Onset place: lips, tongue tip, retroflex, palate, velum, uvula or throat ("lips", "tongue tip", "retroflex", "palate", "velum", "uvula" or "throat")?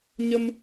palate